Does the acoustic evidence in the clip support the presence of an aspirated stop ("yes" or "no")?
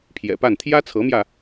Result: yes